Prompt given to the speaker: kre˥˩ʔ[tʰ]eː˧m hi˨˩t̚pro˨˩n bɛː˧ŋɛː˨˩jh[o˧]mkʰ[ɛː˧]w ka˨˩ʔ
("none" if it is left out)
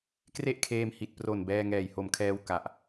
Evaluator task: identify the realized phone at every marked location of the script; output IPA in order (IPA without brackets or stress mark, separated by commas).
kʰ, o˨˩, ɛː˧